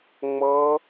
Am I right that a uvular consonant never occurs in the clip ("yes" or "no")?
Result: yes